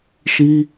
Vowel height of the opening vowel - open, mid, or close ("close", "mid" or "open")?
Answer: close